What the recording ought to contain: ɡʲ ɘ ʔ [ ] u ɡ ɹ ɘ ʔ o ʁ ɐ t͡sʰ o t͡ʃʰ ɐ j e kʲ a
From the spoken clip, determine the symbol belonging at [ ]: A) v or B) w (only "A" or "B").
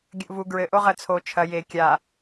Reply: A